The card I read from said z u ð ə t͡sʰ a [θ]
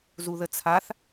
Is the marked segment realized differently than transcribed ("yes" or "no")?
no